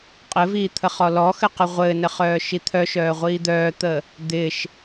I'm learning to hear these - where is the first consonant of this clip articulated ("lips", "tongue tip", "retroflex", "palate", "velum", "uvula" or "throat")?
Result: uvula